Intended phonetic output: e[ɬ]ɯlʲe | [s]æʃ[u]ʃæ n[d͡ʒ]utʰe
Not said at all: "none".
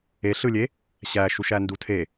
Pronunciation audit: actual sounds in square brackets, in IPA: ɬ, ɕ, u, d

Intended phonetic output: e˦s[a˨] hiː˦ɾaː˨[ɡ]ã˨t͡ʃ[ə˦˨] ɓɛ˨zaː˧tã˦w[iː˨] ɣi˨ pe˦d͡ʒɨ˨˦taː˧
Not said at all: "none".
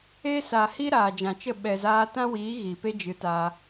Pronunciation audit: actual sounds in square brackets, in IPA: a˨, d͡ʒ, ə˦˨, iː˨˦

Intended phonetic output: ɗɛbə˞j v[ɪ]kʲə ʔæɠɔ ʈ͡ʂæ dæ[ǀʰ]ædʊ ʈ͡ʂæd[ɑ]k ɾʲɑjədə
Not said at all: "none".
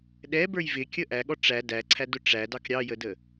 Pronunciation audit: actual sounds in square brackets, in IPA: ɪ, ǀʰ, ɑ

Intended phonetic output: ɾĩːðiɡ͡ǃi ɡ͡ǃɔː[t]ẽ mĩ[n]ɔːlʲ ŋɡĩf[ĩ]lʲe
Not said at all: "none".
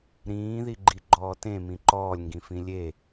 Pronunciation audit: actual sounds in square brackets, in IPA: t, ǃ, ĩ

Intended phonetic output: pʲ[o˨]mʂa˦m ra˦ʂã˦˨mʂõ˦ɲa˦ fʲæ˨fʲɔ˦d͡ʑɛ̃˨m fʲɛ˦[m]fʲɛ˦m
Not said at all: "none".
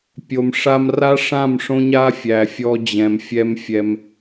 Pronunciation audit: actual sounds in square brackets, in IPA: o˨, m

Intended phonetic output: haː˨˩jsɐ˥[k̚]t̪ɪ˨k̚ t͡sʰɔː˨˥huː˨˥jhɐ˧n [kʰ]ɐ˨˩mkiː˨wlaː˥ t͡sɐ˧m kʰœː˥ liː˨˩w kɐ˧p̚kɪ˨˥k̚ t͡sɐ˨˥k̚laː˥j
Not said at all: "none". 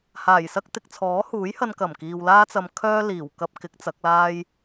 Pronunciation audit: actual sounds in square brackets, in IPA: k̚, k

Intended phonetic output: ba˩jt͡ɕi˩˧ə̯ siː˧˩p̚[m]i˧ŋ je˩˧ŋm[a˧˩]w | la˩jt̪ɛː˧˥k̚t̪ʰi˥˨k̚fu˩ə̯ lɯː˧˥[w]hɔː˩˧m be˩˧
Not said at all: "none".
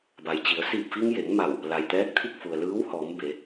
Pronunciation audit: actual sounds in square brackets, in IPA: f, a˧˩, w

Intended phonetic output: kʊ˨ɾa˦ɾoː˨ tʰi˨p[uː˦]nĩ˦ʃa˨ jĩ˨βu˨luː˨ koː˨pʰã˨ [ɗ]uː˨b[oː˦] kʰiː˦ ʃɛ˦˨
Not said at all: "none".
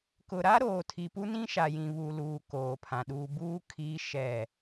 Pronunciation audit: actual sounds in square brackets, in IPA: u˦, ɗ, uː˦

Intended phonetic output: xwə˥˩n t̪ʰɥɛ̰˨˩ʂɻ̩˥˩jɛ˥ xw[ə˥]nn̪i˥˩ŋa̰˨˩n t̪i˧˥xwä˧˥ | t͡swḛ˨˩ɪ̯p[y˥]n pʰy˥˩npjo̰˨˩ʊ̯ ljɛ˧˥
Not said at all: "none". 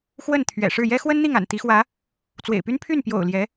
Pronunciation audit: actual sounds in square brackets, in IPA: ə˥, y˥

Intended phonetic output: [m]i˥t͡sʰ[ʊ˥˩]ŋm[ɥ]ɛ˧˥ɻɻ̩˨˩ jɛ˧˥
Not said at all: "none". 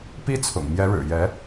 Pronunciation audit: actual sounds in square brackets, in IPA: p, ʊ̰˨˩, j

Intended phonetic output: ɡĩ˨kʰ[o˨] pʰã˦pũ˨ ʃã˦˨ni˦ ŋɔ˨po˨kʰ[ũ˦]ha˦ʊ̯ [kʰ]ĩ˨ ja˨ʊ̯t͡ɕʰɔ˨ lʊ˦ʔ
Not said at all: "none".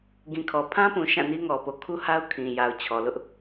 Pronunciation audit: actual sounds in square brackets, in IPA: ɔ˨, u˦, kʰ

